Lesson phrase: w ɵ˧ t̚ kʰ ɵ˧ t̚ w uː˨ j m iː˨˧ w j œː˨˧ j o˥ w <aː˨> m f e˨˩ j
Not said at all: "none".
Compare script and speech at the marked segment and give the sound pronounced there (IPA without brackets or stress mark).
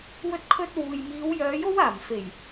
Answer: aː˨˩